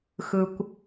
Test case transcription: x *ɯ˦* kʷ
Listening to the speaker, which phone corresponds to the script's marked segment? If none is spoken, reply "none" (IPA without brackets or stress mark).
ɯ˦